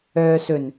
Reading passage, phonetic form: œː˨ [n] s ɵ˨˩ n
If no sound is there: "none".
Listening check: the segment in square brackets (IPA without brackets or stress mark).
none